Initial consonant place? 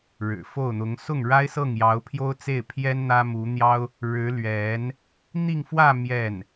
retroflex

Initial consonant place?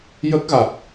palatal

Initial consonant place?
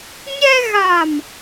palatal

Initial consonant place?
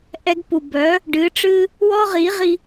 glottal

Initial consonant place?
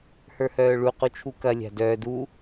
glottal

